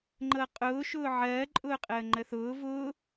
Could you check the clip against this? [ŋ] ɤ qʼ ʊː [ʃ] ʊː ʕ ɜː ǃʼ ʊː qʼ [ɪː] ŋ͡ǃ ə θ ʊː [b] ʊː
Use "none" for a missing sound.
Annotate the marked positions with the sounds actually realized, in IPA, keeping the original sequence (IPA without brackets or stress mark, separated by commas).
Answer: ŋ͡ǃ, ʃ, əː, v